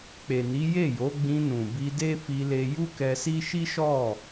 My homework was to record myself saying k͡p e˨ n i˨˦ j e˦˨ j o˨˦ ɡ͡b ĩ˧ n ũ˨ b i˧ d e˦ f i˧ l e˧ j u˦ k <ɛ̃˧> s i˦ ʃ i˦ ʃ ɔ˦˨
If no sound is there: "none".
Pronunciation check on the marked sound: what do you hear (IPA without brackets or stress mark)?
ɛ˧